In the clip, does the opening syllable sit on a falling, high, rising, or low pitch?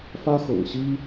high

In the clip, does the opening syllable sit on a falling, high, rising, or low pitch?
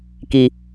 low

